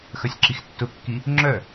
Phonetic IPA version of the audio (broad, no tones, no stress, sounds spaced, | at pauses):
x œ sʲ ǁ i x tː ʊ kː i | ŋ͡ǁ œ